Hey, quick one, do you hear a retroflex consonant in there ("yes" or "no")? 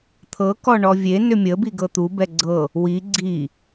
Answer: yes